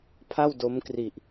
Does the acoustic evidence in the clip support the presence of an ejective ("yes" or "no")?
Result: no